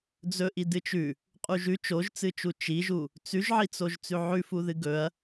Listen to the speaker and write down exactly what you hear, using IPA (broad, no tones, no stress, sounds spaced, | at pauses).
d͡z ɵ ʔ i d ɨ t͡ʃ ʉ | qʼ u ʒ ʉ t͡ʃ o ʒ t͡s ɨ t͡ʃ u t͡ʃ i ʒ u | t͡s ʉ ʒ ʕ i t͡s o ʒ t͡s ʉ ʕ ʉ f u ð ɨ ɡ ɵ ɐ̯